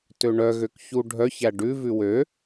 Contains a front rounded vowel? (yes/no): yes